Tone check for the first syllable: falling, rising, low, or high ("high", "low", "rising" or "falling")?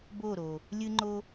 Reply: falling